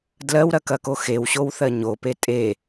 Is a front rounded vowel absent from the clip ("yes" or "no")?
yes